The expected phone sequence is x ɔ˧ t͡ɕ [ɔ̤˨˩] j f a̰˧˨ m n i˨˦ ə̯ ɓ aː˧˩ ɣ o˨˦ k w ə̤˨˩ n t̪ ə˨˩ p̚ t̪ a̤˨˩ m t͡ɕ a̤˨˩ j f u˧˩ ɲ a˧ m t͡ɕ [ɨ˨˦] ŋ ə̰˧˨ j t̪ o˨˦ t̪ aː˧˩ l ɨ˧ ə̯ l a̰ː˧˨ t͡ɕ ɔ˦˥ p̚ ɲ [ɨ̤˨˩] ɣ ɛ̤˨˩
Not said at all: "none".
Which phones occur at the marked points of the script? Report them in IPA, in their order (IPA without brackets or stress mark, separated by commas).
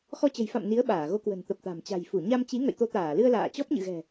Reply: ə̤˨˩, i˨˦, ɨ̰˧˨